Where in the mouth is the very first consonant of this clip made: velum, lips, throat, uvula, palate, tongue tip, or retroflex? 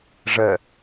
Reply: retroflex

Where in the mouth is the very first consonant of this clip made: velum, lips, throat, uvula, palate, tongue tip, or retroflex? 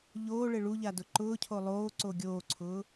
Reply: palate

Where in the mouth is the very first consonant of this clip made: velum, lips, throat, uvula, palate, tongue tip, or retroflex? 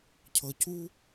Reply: palate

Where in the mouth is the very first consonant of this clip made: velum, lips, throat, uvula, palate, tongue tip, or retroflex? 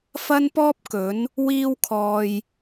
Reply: lips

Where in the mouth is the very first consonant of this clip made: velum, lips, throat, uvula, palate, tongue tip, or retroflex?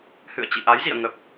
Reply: throat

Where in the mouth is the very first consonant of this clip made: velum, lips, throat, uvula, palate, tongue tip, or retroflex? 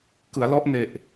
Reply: velum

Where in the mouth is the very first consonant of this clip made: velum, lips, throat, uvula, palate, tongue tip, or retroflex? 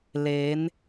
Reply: tongue tip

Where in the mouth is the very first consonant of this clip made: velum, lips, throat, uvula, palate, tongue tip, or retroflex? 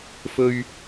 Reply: lips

